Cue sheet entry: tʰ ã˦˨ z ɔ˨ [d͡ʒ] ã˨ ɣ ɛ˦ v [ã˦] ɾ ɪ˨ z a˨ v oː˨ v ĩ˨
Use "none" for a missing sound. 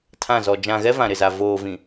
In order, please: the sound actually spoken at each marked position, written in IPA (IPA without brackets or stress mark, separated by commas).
d͡ʒ, ã˨